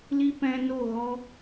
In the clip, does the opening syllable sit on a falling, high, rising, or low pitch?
high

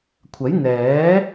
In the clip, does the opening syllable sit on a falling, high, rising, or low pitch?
rising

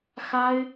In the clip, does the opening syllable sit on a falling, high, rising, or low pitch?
high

